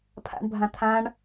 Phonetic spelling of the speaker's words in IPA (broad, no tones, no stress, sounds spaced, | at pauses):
pʰ a̰ ɳ bʱ ã t̪ʰ ã ɳ